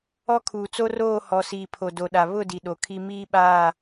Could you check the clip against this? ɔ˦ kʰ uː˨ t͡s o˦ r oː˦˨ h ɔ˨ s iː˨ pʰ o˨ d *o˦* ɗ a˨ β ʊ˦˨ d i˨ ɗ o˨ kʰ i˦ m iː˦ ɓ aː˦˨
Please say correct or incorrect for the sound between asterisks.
incorrect